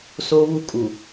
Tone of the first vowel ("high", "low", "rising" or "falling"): high